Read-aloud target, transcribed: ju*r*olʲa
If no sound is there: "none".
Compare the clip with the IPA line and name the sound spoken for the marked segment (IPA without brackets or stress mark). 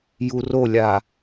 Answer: r